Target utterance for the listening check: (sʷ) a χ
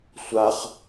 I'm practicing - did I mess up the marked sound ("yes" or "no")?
no